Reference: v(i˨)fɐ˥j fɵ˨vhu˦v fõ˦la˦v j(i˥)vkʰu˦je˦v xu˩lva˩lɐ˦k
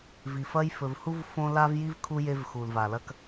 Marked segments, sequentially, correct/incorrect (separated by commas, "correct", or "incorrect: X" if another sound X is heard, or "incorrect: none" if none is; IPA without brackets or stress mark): correct, correct